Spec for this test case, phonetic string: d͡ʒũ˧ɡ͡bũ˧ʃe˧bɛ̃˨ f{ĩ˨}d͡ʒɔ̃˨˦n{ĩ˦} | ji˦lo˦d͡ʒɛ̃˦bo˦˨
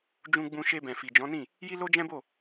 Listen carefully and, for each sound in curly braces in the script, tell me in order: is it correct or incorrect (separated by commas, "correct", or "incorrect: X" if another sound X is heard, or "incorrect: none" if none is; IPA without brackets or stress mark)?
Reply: incorrect: i˨, incorrect: ĩ˦˨